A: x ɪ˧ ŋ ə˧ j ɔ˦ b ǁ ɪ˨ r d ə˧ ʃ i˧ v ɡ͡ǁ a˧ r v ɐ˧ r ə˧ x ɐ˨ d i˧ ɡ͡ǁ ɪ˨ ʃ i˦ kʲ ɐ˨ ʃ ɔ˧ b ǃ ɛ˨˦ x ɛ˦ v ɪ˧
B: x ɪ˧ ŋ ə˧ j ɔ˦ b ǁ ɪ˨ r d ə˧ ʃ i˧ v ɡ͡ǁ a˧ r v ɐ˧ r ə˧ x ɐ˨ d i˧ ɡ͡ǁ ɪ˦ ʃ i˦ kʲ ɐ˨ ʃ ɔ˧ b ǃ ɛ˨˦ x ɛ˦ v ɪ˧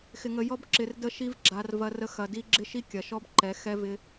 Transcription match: B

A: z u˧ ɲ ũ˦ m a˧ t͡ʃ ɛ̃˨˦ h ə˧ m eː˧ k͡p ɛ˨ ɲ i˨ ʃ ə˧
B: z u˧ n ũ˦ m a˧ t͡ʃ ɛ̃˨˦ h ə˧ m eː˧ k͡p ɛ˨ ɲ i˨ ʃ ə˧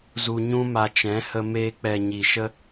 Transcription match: A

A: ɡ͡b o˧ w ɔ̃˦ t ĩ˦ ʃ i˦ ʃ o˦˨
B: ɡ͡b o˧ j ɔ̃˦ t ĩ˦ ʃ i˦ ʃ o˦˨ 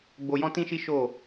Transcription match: B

